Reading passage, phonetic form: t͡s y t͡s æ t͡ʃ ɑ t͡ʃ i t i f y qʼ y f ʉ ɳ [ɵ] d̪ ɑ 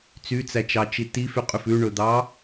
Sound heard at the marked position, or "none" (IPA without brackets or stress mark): ɵ